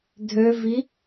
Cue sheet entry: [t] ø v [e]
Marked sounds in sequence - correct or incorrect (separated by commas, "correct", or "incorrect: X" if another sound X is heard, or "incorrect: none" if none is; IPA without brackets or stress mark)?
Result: incorrect: dʱ, incorrect: i